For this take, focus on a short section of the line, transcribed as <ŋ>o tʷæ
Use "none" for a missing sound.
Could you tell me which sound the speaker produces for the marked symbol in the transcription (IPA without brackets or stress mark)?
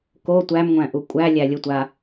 k